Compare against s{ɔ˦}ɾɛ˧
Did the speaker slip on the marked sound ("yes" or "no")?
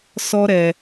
no